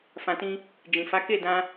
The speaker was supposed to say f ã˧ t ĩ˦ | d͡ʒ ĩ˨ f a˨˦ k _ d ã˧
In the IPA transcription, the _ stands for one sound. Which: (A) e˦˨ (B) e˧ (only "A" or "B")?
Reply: A